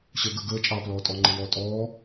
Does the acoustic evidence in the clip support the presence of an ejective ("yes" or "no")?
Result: yes